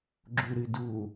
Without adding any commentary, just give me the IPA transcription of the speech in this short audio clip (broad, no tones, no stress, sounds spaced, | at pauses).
ɡ͡ǁ u ɾ ɨ d u